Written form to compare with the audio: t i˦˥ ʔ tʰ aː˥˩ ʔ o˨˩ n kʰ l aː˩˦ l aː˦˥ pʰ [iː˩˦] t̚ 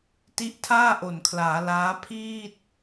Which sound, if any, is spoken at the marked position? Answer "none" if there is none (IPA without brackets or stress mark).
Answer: iː˥˩